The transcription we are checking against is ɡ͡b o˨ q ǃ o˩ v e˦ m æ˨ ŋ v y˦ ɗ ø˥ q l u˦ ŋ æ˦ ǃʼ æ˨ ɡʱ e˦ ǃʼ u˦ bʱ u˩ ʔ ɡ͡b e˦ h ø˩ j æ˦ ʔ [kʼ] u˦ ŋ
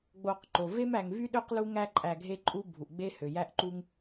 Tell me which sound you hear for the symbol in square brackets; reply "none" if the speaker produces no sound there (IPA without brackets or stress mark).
ǃ